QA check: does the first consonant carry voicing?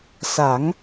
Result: no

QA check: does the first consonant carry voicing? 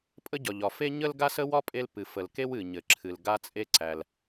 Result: no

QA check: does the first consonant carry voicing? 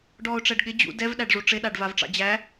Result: yes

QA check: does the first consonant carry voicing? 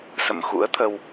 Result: no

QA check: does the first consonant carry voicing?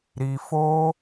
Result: yes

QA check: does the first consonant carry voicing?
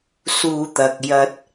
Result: no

